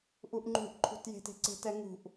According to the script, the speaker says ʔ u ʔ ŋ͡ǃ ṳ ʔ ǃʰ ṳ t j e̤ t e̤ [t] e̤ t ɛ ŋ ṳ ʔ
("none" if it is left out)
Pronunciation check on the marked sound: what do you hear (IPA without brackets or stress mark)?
ǀ